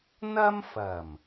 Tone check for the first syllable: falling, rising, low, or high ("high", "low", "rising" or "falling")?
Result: high